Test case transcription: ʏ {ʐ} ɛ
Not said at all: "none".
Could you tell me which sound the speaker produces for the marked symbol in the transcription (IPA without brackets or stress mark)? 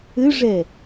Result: ʐ